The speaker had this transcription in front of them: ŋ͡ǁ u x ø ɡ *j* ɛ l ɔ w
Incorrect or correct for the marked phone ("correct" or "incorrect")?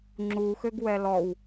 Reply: incorrect